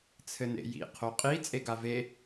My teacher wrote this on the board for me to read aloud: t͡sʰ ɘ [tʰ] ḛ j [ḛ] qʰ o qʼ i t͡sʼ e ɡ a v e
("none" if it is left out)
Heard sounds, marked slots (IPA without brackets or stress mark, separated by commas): n, ḭ